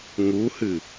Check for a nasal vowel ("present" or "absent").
absent